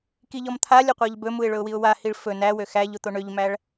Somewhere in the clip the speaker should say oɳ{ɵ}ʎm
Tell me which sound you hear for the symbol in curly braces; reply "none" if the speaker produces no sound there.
ø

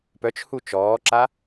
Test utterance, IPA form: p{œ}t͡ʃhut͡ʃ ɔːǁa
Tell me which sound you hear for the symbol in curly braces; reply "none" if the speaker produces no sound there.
œ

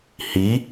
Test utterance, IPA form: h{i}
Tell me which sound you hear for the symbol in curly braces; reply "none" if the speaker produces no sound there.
i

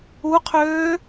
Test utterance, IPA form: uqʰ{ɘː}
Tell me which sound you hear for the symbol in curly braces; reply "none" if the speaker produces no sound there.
øː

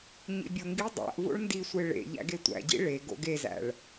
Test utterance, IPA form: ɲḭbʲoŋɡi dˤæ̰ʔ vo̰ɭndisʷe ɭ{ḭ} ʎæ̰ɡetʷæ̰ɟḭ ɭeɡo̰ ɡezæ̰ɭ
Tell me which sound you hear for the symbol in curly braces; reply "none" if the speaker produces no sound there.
ḛ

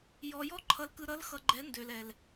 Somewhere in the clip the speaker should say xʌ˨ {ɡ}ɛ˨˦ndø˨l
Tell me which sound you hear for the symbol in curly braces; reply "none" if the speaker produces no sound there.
ɡ͡ǃ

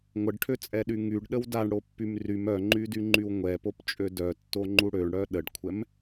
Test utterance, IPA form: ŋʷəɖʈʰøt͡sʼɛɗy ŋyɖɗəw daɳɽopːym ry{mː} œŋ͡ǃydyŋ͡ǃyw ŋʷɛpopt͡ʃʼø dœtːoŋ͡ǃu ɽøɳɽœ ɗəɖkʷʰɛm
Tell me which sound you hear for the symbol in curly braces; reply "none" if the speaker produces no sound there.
m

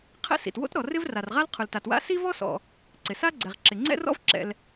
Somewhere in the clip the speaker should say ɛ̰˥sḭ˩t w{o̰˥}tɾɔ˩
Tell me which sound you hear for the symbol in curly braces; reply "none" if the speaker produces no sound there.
o̰˥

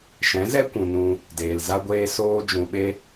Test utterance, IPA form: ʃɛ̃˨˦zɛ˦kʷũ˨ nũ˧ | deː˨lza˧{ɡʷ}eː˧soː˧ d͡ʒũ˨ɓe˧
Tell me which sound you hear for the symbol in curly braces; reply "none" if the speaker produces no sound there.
ɡʷ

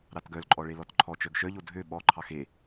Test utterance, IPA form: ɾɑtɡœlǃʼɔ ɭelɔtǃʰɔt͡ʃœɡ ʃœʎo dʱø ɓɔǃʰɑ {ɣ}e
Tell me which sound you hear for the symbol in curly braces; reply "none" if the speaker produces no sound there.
x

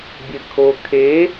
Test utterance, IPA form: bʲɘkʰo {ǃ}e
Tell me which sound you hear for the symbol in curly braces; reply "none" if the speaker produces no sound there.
kʰ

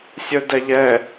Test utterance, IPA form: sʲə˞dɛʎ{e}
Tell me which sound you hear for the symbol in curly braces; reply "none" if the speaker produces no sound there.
ɛ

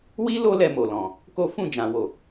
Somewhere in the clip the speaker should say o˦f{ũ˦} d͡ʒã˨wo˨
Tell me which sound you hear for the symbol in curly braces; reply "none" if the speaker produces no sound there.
ũ˦˨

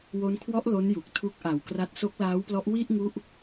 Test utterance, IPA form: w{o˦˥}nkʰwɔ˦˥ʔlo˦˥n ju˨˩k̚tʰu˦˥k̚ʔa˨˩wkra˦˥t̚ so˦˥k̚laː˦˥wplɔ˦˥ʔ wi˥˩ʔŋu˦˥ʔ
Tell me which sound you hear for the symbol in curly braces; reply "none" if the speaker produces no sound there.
o˦˥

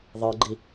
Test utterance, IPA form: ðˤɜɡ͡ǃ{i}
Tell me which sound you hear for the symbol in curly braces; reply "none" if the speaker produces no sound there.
i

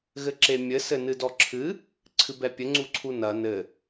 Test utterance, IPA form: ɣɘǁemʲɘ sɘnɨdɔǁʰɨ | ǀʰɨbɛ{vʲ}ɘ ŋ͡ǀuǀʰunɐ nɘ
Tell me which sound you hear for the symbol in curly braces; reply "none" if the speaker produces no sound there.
pʲ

